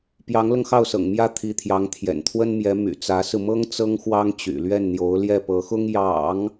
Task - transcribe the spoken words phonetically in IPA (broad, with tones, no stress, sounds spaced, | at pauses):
p j ɑ˧˥ ŋ l ɤ˧ ŋ x ɑ˥˩ ʊ̯ s ɤ̰˨˩ ŋ m j ä˥˩ t̪ʰ i˧˥ t̪ʰ j ɑ˧˥ ŋ t̪ʰ j ɛ̰˨˩ n t̪ʰ w ə˥ n m j ɛ˧˥ m y̰˨˩ t͡s ä˧˥ s ɹ̩˧ m ɤ˥ ŋ t͡s ɤ˥ ŋ x w ɑ˥ ŋ t͡ɕ y̰˨˩ l ɥ ɛ˥˩ n n̪ j o˧˥ ʊ̯ l j ɛ˥˩ p ɤ˧˥ x ʊ˥ ŋ j ɑ̰˨˩˦ ŋ